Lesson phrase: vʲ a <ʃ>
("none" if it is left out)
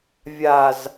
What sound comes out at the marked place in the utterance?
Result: z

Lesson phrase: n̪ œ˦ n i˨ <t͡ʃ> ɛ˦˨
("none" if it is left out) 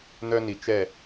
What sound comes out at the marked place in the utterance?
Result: t͡ʃ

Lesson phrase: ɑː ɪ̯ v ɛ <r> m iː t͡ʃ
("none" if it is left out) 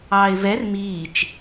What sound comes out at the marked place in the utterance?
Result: r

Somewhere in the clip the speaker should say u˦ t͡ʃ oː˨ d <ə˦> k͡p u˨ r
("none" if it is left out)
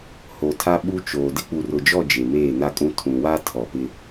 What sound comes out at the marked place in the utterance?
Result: ɪ˦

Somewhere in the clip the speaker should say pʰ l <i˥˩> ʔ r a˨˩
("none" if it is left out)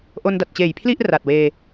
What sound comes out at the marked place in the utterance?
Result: i˥˩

